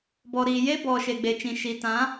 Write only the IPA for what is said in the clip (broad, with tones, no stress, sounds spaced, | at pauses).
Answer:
b ɔ˨ ɾ iː˨ j e˦ b ɔ˨ ʃ e˨ ɡ͡b e˨ t͡ʃ ĩ˨ ʃ i˨ t ã˨˦